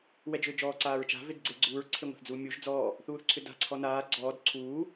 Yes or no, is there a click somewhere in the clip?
yes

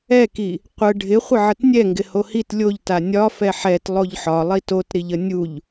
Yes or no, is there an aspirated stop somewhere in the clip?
no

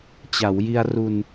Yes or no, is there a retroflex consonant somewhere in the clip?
no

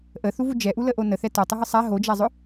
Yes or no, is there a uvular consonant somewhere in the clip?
no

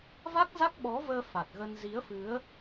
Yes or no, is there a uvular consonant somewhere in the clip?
no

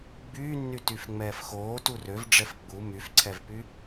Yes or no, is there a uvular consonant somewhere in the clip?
no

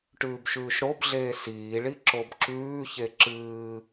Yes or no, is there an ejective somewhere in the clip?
no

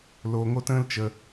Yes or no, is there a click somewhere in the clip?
no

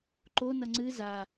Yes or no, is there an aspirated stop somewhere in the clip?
no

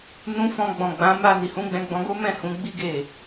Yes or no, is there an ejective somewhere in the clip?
no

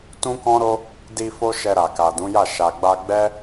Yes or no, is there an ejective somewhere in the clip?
no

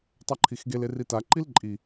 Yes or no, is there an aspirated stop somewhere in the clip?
yes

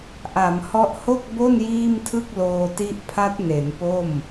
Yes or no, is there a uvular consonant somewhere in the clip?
no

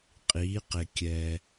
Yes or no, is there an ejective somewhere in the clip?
yes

